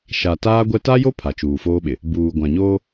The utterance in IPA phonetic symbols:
ʃ a˨ t aː˦ ɡʷ ɛ˦ t a˦ j o˦ pʰ a˨ t͡ʃ uː˨ f oː˦ ɓ ɪ˨ | b uː˨ ɡʷ ã˨ ɲ oː˦

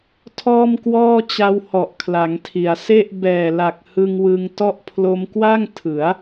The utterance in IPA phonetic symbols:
tʰ ɔː˥˩ m k w ɔː˥˩ t͡ɕ a˧ w h ɔ˨˩ ʔ kʰ l a˩˦ ŋ tʰ i˩˦ a̯ s e˥˩ ʔ b ɛː˨˩ l a˨˩ k̚ h ɯ˧ ŋ w ɯ˧ ŋ t ɔ˦˥ ʔ pʰ l o˧ m k w a˥˩ ŋ tʰ ɯ˩˦ a̯

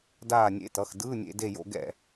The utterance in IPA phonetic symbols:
d aː˦˨ nʲ ḛ˧˥˧ t ʌ˩˧˩ x d ɯː˧˥˧ nʲ ḛ˧˥˧ d e˦˨ j o̰˧˥˧ ɡ ɛ̰˦˨

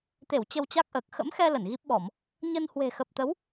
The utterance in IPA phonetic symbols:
t̪ e˧˩ w t͡ɕ ə˧ w t͡ɕ a˦˥ k̚ ʔ əː˨˩ k̚ x ə̰˧˥ m x ɛ˧ l ə˧˩ n ɣ i˦˥ p̚ ɓ ɔ˧˩˨ m | ɲ ə˧ n h w e̤˨˩ x ə˨˩ p̚ t̪ ə˨˦ w

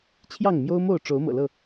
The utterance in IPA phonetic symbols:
t͡ɕʰ j ɑ˥˨ ŋ m j o˦ ʊ̯ m o˥˨ ʊ̯ ʈ͡ʂ o˨˦ ʊ̯ m ɤ̰˨˩ l ɤ˥˨

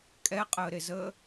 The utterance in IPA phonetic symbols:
kʼ ɛ qʼ əː ɾ e z əː

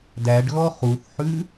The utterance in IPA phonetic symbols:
d æ ɖ ɣ ɔ χ u θ ħ ʉ

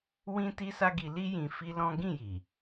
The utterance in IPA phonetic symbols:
w ĩ˦ t i˦ s a˦ ɡ i˧ l i˦ j ĩ˧ f i˦ l ɔ̃˦ ɡ ĩ˦˨ j i˨

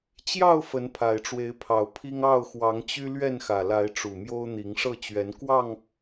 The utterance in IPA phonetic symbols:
t͡ɕ j ɑ˥˨ ʊ̯ f ə˨˦ n pʰ a˨˩ ɪ̯ ʈ͡ʂ w e˨˦ ɪ̯ pʰ ɑ˨˩ ʊ̯ pʰ i˦ ŋ ɑ˥˨ ʊ̯ x w ɑ˨˦ ŋ t͡ɕ y˦ l ɥ ɛ˥˨ n x ä˨˩ l a˨˦ ɪ̯ ʈ͡ʂ u˨˩ m j o˦ ʊ̯ n̪ i˨˦ ŋ ʂ ɤ˥˨ t͡ɕ ɥ ɛ˨˦ n k w ɑ˥˨ ŋ

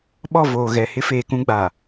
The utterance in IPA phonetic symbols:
ɓ ɔ˦˨ v oː˨ ɣ ɛ˨ h ɪ˦ f eː˨ k ũ˦ ɡ͡b a˨

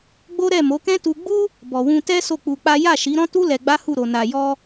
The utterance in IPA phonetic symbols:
ɡ͡b o˦ ɾ ɛ˦˨ m o˨˦ k ɛ̃˦ t u˧ ɡ͡b u˦ | b ɔ˨ w ũ˧ t ɛ˦ s o˦˨ k͡p u˧ k͡p a˦ j a˦˨ ʃ i˨˦ ɾ ɔ̃˦ t u˦ l ɛ˧ ɡ͡b a˦ h u˦˨ ɾ o˧ n a˧ j ɔ˧

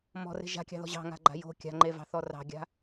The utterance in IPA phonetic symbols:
m ɔ̤ r e̤ ʒ a̤ kʲ ɑ̤ ð ɔ̤ ʑ ɑ̤ ŋ a̤ ɡ͡ǃ a̤ j o̤ kʲ a̤ ŋ͡ǃ e v ɑ̤ θ ɔ r ɑ̤ ɡʲ a̤

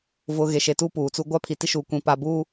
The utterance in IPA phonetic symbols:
v ʊ˨ ɣ e˨ ʃ e˨ t u˦ p uː˨ t͡s u˦ ɡʷ a˦ pʰ i˨ t i˦ ʃ uː˨ kʷ ĩ˨ p a˨ b uː˦

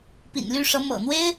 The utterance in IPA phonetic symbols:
p ḭ˨˩ n l y˥˩ ʂ ɤ˧˥ m ɤ̰˨˩ n̪ w e˥ ɪ̯

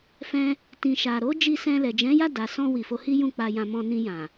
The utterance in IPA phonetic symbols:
f ɛ̃˧ | t ĩ˧ ʃ a˧ ɾ o˦ d͡ʒ i˧ s ɛ̃˧ l ɛ˨ d͡ʒ ɛ̃˨˦ j a˦˨ d a˨ s ɔ̃˧ w i˨ f o˨˦ h i˦ j ũ˦˨ k͡p a˧ j ã˧ m ɔ̃˧ n ĩ˧ j ã˨

